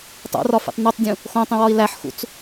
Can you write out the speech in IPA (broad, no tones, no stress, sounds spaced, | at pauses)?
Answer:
tˤ o̰ r ɒ f ḭ tˤ n u tˤ dʲ ũ | x õ tˤ ĩ w ɒ i̯ l æ ħ x ṵ t͡s